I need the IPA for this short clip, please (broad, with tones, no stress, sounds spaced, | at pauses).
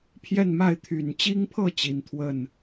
pʰ j ɛ˥˨ n m a˥˨ ɪ̯ t̪ʰ y˨˩ n t͡ɕ i˦ ŋ pʰ ɤ˥˨ t͡ɕ i˨˦ n t̪ʰ w ə˥˨ n